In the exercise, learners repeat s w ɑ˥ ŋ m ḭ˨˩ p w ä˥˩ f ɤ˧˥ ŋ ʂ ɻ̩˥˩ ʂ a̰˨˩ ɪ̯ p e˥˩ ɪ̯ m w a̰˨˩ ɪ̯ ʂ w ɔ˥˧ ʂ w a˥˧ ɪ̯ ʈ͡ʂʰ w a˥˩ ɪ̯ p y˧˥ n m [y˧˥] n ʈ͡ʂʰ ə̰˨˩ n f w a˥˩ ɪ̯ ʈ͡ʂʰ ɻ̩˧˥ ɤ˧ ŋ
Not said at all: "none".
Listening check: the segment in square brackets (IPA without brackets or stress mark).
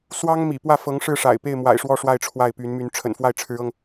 y˧˥